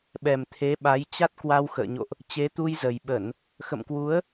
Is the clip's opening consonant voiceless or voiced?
voiced